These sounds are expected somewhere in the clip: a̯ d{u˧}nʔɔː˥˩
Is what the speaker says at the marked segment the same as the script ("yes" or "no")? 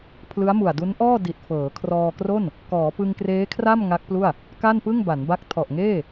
no